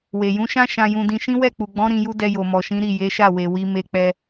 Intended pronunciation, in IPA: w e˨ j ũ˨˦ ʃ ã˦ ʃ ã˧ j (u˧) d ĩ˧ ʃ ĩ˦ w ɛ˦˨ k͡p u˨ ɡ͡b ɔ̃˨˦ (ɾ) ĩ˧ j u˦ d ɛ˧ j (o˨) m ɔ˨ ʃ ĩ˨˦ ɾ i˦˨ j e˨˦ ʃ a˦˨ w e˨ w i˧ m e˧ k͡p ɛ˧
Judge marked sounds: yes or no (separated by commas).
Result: no, yes, yes